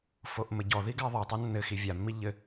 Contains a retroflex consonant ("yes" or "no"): no